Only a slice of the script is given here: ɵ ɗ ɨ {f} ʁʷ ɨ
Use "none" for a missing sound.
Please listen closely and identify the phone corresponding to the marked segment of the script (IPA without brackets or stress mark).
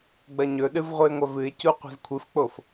v